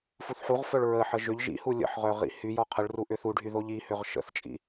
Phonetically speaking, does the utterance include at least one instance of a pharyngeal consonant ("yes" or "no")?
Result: yes